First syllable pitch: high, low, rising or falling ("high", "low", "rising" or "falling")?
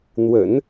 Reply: low